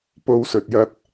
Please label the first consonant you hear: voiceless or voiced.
voiceless